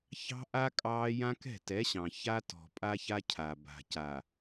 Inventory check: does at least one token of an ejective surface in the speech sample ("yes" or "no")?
yes